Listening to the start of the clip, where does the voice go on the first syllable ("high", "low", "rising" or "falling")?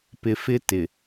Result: low